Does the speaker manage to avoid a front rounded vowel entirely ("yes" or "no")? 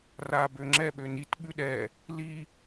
no